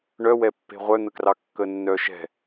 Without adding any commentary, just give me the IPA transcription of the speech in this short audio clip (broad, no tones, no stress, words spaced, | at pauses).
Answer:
ɳœwɛpːe̤ ʁʷœn̪əkrɑ kːənːœʃɛ̤